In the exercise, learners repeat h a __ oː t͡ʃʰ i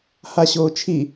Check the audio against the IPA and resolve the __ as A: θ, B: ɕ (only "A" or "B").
B